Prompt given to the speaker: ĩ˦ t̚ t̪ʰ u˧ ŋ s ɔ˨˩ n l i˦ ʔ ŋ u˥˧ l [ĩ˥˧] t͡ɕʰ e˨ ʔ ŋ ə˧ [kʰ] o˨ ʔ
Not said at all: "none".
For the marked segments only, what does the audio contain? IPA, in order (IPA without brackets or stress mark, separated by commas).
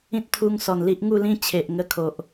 ĩ˥˧, kʰ